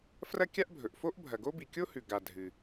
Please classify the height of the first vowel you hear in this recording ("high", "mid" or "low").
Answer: low